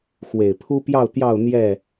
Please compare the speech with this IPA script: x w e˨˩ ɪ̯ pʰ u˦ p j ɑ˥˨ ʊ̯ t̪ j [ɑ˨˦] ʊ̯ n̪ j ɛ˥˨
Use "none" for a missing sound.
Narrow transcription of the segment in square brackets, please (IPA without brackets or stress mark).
ɑ˥˨